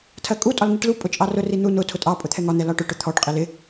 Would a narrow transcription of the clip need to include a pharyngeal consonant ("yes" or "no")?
no